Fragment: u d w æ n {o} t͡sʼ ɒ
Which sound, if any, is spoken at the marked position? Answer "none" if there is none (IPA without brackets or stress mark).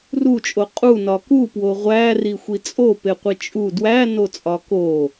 o